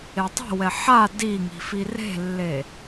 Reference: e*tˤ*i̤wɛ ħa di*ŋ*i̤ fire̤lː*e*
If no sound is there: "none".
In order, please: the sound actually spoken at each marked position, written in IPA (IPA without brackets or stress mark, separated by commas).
tˤ, ŋ, e